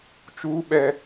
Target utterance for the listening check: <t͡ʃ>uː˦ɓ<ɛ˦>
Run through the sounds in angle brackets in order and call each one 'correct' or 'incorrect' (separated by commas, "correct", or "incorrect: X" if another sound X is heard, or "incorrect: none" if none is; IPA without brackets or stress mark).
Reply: correct, correct